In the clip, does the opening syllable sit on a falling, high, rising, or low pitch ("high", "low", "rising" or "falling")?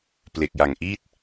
low